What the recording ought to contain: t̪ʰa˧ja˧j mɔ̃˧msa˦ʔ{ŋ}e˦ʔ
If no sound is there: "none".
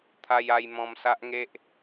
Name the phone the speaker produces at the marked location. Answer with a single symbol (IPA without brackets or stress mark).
ŋ